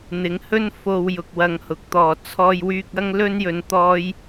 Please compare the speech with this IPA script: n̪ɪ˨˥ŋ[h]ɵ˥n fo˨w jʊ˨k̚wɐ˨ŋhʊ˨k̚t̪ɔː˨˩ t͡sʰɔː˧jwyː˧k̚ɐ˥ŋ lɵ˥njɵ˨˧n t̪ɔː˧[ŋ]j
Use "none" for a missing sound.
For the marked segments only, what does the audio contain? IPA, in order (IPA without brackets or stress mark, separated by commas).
h, none